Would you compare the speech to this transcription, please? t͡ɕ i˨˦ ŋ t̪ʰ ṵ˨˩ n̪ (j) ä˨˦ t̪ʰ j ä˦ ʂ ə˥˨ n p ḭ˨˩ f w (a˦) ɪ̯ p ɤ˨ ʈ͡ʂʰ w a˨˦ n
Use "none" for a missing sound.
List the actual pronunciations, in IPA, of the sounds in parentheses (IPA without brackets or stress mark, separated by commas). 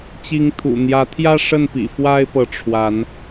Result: j, a˦